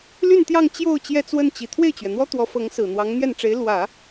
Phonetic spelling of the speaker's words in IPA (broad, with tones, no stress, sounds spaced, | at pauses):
l y˥˧ n t̪ j ɑ˥˧ ŋ t͡ɕ j o˥˧ ʊ̯ t͡ɕ j ɛ˥˧ t͡s w ə˥˩ n t͡ɕ i˨˩ t̪ʰ w e˥˩ ɪ̯ t͡ɕ ɥ ɛ˩ n̪ w ɔ˥ t̪ w ɔ˧˥ f ɤ˧˥ ŋ s ɹ̩˨˩ n̪ w ɑ˧˥ ŋ n̪ j ɛ˥˩ n ʈ͡ʂ e˧˥ ɪ̯ l w ä˨˩˦